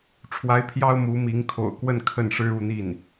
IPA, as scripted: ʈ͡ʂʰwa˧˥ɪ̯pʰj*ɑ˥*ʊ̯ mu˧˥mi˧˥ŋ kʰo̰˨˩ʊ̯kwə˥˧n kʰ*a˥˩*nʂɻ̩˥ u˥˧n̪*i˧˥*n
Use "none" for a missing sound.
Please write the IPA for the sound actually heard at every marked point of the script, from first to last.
ɑ˥, ə˥˩, i˥˩

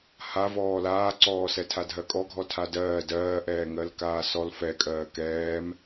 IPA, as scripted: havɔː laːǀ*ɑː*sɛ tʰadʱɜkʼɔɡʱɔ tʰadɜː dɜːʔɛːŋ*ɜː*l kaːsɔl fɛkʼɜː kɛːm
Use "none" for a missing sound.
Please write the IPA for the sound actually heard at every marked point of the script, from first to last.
ɔː, ɜ

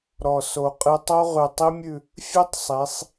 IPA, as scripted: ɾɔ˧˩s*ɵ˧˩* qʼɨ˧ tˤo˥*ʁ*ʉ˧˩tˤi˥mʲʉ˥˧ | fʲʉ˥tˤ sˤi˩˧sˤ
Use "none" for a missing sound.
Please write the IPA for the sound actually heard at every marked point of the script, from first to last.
o˧˩, ʁ

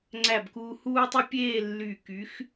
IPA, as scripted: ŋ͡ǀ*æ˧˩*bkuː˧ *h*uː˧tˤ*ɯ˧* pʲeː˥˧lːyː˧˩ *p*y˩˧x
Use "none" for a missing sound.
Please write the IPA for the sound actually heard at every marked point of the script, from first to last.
æ˧˩, h, ɯ˧, k

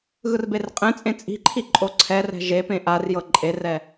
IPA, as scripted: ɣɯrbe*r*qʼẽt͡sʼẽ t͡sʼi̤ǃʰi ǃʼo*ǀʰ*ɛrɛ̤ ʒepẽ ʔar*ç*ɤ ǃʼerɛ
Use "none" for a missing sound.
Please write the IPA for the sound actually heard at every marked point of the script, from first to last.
r, ǀʰ, j

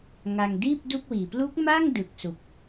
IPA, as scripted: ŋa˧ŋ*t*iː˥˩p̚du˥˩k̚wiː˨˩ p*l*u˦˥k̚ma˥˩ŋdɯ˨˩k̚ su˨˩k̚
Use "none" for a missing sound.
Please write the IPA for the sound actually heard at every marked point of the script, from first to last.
d, l

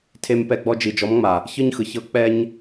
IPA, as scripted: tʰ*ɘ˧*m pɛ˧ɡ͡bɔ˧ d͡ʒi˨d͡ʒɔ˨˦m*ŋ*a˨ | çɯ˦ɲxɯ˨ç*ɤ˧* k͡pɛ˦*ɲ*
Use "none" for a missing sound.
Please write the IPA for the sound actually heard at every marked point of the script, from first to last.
e˧, ŋ͡m, ɤ˦, ɲ

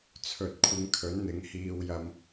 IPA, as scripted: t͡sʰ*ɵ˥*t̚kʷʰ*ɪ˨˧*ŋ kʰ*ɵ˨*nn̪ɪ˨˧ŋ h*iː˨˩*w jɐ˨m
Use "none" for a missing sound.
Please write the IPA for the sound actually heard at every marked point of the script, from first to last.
ɵ˨, ɪ˨˧, ɵ˨˥, iː˨

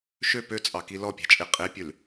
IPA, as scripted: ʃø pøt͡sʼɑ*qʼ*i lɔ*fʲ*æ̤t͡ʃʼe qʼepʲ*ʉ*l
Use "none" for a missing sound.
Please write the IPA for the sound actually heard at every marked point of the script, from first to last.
k, pʲ, ʉ

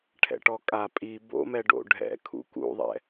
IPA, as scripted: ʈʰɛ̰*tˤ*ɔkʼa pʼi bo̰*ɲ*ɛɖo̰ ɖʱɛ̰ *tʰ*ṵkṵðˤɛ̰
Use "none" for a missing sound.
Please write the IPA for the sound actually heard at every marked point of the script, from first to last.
ʈ, m, kʰ

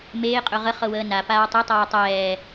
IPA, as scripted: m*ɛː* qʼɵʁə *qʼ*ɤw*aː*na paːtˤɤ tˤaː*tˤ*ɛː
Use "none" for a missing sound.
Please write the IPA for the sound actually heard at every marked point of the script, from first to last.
eː, χ, əː, tˤ

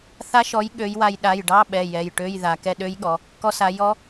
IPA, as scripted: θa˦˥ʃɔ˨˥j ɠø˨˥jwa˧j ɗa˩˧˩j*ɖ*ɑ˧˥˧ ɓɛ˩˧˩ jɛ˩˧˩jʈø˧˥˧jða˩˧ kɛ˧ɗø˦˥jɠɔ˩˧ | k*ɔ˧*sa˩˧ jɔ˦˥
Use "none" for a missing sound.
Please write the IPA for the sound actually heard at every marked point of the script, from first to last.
ɖ, ɔ˧

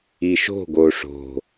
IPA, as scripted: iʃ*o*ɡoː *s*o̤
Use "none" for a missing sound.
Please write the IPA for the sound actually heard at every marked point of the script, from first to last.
o̤, ʂ

